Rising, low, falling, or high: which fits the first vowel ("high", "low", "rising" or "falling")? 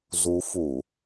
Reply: rising